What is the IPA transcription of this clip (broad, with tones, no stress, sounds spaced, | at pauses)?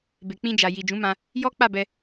b e˨ k͡p ĩ˧ d͡ʒ a˨ j i˨ d͡ʒ ũ˨˦ m ã˧ | j ɔ˦ k͡p a˦˨ b ɛ˧